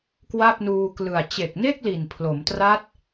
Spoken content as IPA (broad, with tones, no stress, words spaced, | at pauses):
kwa˥˩p̚nuː˧ klɯ˨˩a̯ t͡ɕe˨˩k̚ne˥˩k̚ li˨˩npʰlo˩˦mtra˦˥t̚